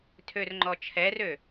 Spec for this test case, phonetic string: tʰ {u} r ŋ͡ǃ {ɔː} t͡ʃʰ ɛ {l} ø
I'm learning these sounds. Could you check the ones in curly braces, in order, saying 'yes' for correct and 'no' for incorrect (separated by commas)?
no, no, no